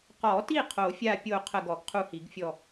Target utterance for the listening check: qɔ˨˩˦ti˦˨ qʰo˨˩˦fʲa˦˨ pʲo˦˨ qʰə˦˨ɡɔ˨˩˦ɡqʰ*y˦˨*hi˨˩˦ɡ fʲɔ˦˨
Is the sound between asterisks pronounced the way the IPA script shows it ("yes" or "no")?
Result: no